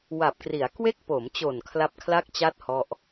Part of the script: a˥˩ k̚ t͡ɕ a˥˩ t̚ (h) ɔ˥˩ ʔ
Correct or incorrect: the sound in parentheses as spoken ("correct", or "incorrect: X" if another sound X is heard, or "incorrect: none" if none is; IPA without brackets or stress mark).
correct